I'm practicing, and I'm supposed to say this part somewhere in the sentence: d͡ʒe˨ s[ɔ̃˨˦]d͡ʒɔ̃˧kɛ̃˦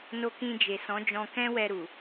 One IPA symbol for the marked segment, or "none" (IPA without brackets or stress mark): ɔ̃˨˦